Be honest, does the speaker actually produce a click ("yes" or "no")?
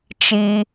no